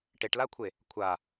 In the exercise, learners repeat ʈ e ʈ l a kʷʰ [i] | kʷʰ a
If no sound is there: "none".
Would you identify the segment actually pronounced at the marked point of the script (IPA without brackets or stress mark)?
e